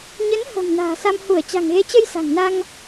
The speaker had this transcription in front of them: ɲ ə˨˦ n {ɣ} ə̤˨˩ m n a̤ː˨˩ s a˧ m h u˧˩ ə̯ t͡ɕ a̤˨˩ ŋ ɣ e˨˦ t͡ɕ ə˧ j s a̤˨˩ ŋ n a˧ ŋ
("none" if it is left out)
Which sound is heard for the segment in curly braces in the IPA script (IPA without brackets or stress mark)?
h